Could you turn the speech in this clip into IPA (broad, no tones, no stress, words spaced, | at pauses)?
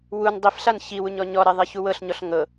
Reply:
wun dˤif ɬançiwuɲɔ ɲɔɾeðˤeçu wɤɬɲɔɬ ŋɤ